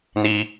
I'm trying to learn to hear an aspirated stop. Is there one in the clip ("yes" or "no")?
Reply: no